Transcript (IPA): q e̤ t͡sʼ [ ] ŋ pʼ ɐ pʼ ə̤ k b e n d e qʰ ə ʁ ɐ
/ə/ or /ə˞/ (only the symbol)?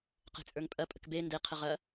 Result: ə˞